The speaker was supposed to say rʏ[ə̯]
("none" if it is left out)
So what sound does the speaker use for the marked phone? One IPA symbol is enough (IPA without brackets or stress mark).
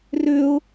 ʊ̯